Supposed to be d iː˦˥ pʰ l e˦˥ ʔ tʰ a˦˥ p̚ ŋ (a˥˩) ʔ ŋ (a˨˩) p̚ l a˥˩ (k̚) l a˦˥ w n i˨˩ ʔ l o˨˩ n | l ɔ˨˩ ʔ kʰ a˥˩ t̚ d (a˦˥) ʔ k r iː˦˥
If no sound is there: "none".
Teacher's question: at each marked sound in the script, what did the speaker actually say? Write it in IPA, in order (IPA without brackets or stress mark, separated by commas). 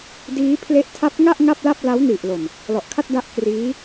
a˥˩, a˥˩, p̚, a˦˥